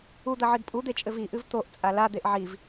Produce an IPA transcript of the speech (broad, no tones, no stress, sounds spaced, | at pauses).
u d̪ ɐ ʕ ɨ d pʼ u d̪ e t͡ʃʼ ɘ v i ʔ ɨ v t̪ o ʔ t͡sʼ a l a d̪ e ʔ ʕ i v